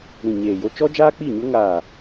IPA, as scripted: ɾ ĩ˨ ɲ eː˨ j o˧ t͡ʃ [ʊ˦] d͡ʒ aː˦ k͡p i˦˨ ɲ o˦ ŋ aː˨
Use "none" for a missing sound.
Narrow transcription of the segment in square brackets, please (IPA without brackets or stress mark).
ɔ˦